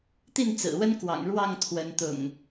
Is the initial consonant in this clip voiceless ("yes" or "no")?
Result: yes